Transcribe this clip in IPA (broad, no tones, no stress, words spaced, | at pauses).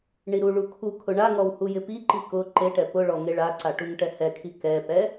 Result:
ɳiɾuɭu kʰu kʰʊɳaŋɔw hujɪpiǃi kʊ ǃeʈɛ pʊɭɔ ŋeɭaǀa ʈuŋʈɛhɛkʰi kɛpɛ